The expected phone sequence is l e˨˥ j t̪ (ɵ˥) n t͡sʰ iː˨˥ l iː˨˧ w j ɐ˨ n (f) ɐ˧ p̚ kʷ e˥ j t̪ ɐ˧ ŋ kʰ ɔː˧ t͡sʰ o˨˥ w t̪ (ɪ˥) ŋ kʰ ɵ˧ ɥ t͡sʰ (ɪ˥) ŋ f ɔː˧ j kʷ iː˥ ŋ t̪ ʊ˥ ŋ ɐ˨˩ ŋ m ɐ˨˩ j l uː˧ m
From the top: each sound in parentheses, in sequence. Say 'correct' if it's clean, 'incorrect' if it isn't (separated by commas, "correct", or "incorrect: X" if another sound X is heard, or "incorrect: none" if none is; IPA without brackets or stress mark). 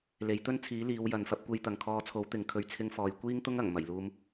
correct, correct, incorrect: ɪ˨˥, correct